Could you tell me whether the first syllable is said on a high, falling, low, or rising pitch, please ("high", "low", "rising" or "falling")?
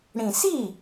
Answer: low